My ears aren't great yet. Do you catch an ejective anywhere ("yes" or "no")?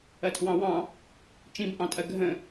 yes